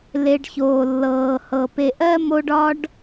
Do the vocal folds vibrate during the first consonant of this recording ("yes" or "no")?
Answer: yes